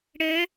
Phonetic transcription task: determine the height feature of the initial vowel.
mid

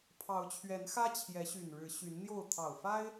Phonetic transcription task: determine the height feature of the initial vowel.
low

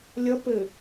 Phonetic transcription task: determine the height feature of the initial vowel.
mid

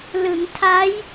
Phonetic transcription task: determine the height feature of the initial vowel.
high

